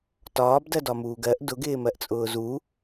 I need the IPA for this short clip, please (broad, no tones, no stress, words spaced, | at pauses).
tɒːbdɜdɒmuːɡ ɜʔ dʊɡɪːmɜʔt͡sʼʊː zu